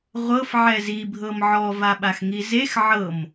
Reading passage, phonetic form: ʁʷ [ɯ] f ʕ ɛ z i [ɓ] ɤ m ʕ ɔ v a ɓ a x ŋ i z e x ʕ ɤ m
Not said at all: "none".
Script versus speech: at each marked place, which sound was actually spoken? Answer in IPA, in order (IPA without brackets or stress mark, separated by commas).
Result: ɤ, bʱ